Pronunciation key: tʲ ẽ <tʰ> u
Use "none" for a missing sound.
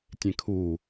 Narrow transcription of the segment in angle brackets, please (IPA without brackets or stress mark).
kʰ